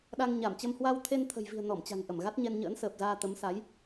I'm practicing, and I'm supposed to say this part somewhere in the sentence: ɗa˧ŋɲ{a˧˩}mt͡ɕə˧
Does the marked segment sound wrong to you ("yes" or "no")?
no